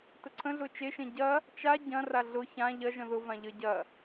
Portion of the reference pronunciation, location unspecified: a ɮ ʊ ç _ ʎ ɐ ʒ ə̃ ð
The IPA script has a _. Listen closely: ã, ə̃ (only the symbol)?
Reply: ã